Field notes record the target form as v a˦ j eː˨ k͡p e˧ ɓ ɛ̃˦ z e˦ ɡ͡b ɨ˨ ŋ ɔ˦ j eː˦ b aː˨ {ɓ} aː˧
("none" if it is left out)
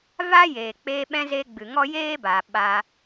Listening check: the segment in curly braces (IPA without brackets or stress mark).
ɓ